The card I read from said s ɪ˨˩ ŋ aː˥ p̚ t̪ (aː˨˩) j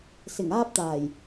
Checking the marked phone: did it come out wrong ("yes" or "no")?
no